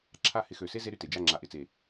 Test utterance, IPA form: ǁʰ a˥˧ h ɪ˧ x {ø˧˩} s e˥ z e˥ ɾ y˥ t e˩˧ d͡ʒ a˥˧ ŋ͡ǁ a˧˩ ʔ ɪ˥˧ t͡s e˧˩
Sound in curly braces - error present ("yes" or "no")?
no